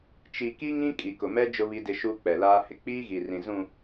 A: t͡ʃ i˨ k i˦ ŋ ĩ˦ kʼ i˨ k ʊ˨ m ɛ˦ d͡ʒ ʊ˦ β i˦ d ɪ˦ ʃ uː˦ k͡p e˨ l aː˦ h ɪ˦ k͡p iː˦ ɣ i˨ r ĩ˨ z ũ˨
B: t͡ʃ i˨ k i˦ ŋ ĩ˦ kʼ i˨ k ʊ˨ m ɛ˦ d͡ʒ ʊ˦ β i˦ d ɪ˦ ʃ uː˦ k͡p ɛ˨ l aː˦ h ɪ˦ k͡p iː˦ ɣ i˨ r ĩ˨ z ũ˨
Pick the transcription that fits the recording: B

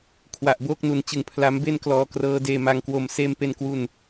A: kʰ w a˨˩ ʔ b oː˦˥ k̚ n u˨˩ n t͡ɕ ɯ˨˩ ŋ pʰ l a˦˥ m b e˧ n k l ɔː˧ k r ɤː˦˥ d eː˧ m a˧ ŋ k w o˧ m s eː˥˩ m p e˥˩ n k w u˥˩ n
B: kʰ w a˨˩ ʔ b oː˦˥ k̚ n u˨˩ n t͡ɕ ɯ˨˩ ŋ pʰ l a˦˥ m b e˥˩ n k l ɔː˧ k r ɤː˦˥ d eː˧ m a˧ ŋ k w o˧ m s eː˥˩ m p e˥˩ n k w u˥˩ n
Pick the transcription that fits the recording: B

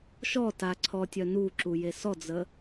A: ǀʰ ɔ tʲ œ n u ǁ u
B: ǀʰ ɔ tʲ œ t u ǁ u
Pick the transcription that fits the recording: A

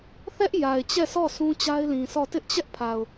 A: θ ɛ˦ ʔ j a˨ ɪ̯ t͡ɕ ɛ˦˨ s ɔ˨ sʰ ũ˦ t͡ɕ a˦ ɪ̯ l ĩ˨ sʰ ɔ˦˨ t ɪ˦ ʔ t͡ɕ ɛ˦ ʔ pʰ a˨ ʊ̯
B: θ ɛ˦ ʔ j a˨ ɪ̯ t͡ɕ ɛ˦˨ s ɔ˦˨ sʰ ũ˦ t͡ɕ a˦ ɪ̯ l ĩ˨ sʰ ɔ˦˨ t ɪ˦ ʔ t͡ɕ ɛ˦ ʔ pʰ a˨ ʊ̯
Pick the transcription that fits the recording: B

